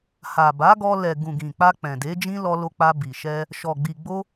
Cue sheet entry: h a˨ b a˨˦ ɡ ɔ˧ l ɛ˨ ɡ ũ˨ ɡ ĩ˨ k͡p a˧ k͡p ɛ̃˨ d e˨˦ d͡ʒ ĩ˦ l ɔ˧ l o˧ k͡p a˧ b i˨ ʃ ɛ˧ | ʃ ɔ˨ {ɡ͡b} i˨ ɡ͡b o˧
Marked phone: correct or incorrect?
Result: correct